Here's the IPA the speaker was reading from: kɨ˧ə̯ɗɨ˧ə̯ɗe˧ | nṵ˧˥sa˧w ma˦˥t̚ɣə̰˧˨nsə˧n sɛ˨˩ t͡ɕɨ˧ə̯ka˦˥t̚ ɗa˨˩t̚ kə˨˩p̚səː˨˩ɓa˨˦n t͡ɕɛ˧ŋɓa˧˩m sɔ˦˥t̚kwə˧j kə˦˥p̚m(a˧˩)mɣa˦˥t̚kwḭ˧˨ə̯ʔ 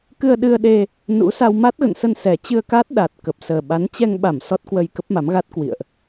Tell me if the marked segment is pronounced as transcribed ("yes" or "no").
no